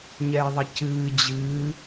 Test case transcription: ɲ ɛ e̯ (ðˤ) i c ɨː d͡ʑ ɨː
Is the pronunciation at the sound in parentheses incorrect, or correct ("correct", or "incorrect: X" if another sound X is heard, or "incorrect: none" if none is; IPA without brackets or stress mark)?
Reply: correct